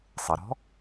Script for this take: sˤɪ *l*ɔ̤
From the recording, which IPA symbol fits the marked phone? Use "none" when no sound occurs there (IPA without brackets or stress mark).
ɾ